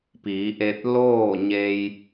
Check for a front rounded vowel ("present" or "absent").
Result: absent